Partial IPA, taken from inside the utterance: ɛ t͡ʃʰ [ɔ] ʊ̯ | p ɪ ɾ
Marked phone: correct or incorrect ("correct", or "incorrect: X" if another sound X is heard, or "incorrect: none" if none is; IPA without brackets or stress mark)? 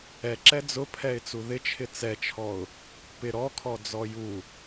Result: correct